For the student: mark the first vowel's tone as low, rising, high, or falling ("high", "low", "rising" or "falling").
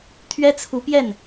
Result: high